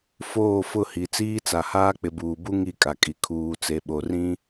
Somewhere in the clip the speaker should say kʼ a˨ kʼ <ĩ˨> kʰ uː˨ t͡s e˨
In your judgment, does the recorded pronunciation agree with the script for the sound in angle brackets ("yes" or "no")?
no